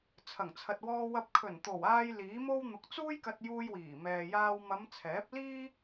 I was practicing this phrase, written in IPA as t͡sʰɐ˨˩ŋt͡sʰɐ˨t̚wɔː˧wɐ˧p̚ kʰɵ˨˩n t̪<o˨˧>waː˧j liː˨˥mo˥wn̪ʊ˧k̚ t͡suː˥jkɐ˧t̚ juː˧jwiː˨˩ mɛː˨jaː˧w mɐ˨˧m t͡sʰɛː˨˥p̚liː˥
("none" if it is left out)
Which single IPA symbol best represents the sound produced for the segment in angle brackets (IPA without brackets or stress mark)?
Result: o˨˩